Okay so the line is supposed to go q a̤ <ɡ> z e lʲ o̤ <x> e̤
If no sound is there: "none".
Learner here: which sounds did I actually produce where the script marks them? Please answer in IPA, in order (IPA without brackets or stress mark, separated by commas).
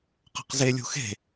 q, x